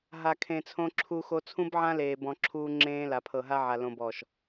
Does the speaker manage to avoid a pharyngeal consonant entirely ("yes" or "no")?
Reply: no